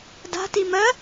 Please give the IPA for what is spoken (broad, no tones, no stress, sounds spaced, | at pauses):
d a̤ t i m ɜ